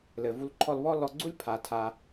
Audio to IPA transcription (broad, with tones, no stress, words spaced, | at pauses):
lɘ˩vu˧lǃʰɔ˧lβɔ˥ lɔ˧ɡ͡ǀu˥lʲ pʰa˩tʰa˩